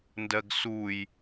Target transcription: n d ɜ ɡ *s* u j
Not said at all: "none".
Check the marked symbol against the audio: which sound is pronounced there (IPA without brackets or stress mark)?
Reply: s